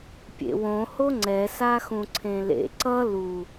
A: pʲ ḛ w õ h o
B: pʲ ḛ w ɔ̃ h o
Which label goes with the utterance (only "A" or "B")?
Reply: A